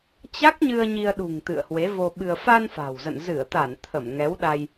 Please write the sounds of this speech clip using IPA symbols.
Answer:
t͡ɕ a˦˥ k̚ ɲ ɨ˧ ə̯ ɲ i˧ ə̯ ɗ ṳ˨˩ ŋ t̪ ɨ̰˧˨ ə̯ h w e˨˦ v o˧ ɓ ɨ˧ ə̯ f a˧ n f a̤˨˩ w z ə̰˧˨ n z ɨ˧˩ ə̯ t̪ a˧˩ n t̪ʰ ə˧˩ m ŋ ɛ˨˦ w ɗ a˧ j

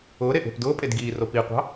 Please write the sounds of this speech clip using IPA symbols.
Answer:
ʊː ɾ e ʔ e̤ p d ʊː pʼ e d ɡ iː r o p i qʷ ɑ̤

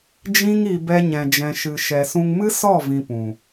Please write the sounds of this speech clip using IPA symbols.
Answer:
d͡ʒ ĩ˧ ŋ i˨ b ɛ˧ ɲ ɛ̃˨ d͡ʒ ɛ̃˨ ʃ ɨ˨ ʃ ɛ˨ s ũ˧ ŋ m ɨ˦ s ɔ˦˨ v ĩ˧ p ũ˨

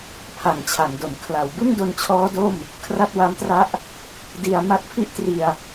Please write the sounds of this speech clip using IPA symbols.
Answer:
pʰ a˨˩ ŋ t͡ɕʰ a˩˦ n d o˩˦ m kʰ l a˩˦ w b ɯ˥˩ ŋ d o˧ n t͡ɕʰ ɔː˦˥ d o˥˩ m | kʰ r a˥˩ t̚ w a˦˥ m t r a˥˩ ʔ | d i˧ a̯ m a˦˥ t̚ pʰ i˥˩ ʔ t r i˧ a̯

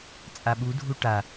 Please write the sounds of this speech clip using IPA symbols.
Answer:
t͡sʼ a ɓ u dʱ u ʈ a

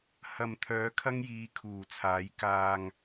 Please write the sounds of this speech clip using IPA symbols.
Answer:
h ɐ˨ m t̪ʰ œː˨˥ kʰ ɐ˥ ŋ j iː˨˧ kʰ uː˨˩ t͡sʰ aː˨˥ j k aː˨ ŋ

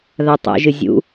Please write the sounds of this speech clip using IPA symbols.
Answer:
ð a tˤ ṵ ʒ ɨ zʲ ṵ

